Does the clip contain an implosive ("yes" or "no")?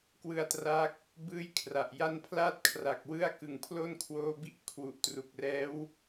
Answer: no